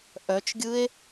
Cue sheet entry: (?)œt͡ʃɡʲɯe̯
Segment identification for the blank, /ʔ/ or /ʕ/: ʔ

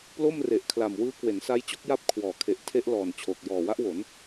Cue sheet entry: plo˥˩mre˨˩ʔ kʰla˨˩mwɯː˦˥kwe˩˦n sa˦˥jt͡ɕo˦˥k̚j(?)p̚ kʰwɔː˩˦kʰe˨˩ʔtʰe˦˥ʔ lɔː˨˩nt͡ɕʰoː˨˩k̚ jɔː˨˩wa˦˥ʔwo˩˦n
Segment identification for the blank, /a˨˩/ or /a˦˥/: a˦˥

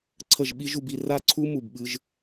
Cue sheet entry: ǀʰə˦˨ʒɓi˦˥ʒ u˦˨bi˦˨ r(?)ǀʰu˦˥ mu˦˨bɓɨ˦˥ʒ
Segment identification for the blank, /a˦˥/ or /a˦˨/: a˦˥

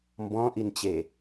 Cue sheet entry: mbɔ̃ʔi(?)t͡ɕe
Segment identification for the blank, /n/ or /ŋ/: n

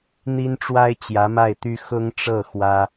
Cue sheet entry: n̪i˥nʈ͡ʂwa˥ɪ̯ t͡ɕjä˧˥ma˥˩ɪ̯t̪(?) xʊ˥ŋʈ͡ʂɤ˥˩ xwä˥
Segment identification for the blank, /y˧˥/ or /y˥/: y˥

